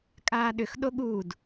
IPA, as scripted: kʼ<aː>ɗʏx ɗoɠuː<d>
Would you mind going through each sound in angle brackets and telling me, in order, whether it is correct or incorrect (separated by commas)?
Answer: correct, correct